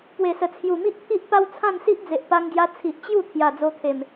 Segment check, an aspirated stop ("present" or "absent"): present